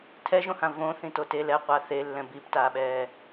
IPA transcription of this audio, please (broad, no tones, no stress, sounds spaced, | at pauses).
tʰ ɛ ʒ õ h ã v õ θ ĩ t o t e l ɛ qʷ a θ e lː ɛ̃ b i p t aː ɓ ɛː